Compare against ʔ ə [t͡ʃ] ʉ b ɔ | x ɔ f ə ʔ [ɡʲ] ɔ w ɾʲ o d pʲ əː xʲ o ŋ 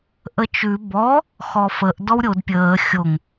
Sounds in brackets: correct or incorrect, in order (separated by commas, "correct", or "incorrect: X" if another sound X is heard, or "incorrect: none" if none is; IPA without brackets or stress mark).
correct, incorrect: d